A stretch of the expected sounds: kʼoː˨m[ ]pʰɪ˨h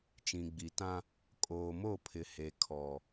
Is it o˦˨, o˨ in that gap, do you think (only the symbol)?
o˦˨